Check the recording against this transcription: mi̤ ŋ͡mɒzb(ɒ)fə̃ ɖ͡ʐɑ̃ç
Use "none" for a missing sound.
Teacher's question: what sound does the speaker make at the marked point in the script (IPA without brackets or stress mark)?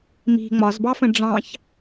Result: ɑ